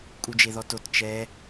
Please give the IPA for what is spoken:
kʼud͡ʒeðɔtot t͡ʃɛ

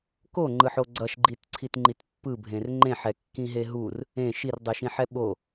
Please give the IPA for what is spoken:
koŋ͡ǃɯħo ɡ͡ǀʌʃɡ͡ǃitǀʰit ŋ͡ǃitpːɯbʱẽr ŋ͡ǃẽħɛ kːĩɦeɦur | ẽ ʃirdˤɯʃĩħɛ ɓo

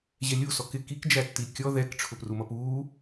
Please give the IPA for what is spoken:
ʑɛlʲu sɔkɪ kikd͡ʒætːi kʲɔ ðɛk ʈ͡ʂʰʊprumʌpuː

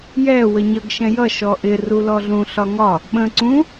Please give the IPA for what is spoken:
jɛ wəɲʌɡ ʃɛ̃jʌ ʃɔʔɪ rulɔɮũ ɬɒŋɒ | ɓə̃ ǀũ

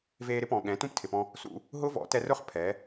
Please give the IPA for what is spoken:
veː˧ɾɪ˦pɔ̃˨ ɠɛ̃˨˦ tũ˦ptʰɪ˨pɔ̃˧ | sṵ˧ | ɦʊ˦ vɔ̰˨˦tɛ˧rʊ˦χ pʰɛ˨˦

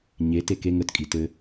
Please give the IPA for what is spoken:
ɲe teke ŋət kʼitɘ

